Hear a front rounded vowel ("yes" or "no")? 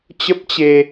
no